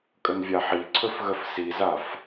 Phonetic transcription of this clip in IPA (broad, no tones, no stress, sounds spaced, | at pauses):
kʼ ə n vʲ a ħ i ǀʰ ɵ f ɣ ə f s i z a f